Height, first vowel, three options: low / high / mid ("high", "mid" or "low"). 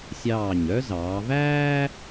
low